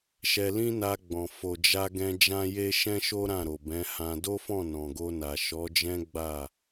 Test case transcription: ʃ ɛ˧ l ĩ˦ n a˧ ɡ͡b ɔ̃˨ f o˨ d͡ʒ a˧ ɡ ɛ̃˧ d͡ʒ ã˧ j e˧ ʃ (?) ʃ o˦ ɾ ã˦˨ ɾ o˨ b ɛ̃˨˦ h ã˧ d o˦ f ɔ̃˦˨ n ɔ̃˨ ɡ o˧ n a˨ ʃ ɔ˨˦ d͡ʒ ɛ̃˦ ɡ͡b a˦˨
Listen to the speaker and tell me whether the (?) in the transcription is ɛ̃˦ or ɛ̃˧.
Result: ɛ̃˦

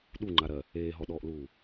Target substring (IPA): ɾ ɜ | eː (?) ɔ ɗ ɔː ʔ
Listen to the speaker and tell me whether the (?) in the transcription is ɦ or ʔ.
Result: ɦ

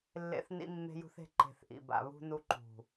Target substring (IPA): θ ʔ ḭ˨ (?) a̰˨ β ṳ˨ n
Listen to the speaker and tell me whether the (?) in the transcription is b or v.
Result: b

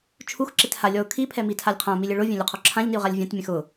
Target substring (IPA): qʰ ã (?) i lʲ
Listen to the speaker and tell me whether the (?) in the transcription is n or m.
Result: m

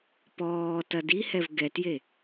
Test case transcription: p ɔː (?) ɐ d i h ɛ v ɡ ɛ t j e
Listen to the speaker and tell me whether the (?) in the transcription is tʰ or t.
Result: t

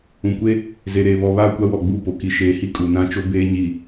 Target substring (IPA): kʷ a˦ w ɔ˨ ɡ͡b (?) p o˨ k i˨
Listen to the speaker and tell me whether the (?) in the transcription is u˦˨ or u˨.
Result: u˦˨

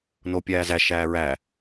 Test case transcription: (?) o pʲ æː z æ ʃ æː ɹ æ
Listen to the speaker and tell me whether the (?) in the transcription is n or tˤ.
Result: n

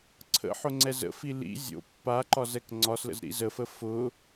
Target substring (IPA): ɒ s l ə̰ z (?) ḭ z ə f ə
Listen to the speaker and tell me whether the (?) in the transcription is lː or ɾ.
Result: ɾ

